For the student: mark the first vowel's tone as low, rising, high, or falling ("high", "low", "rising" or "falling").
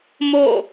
falling